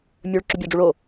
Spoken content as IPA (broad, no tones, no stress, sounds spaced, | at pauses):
mʲ ɵ ɭ ǁ ʉ bʲ a ɖ͡ʐ u ɭ o